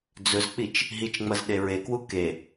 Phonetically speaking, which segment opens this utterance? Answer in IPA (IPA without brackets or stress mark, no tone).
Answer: d͡z